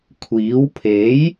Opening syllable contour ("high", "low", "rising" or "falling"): rising